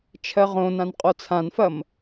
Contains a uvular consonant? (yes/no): yes